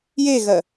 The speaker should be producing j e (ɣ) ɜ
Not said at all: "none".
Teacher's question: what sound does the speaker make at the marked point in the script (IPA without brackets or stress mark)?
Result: ɣ